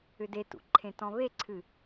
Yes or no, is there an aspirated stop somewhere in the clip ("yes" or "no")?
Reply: yes